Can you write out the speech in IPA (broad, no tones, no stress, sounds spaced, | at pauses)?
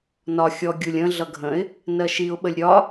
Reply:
n ɒ xʲ ɔ ɡʲ u lʲ ə̃ ɮ ʌ ɡʱ ə̃ ɪ̯ | n ɜ ʃ i ʊ̯ ɓ ə lʲ ɾʲ ɒ